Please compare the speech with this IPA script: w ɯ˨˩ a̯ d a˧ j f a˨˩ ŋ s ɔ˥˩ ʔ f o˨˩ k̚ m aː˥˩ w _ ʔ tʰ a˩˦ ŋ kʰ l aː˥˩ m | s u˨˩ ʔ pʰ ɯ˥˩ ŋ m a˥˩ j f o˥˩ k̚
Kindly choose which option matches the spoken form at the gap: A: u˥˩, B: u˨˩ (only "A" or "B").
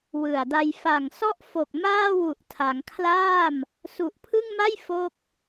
B